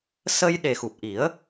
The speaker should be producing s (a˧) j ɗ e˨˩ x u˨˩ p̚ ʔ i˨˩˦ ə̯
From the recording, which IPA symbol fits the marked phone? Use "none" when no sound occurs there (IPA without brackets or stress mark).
ə˧